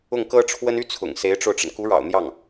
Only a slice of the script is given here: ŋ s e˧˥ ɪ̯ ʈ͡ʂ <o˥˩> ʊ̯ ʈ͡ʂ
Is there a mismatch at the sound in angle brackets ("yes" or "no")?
yes